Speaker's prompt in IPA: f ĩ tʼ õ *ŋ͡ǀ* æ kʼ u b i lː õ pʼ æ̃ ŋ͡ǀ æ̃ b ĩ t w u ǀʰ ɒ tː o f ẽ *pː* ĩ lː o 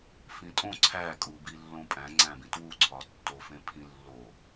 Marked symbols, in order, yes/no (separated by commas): no, no